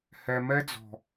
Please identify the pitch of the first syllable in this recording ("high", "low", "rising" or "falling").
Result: low